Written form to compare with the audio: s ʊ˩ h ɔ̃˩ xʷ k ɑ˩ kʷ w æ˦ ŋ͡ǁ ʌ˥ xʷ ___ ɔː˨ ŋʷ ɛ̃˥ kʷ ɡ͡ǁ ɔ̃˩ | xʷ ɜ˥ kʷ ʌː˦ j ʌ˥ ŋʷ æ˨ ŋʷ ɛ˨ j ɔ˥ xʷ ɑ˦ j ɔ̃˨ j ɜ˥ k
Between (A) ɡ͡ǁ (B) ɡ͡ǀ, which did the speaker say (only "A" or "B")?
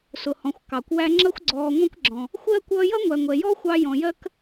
B